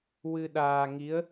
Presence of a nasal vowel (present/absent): absent